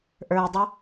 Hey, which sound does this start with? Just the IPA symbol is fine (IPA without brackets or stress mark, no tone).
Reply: ʔ